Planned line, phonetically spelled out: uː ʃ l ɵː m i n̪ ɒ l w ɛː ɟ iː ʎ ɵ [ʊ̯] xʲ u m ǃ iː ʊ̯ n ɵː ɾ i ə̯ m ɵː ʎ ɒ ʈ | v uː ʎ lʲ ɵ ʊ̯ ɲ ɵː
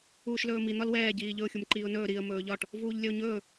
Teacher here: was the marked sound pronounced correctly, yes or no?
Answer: yes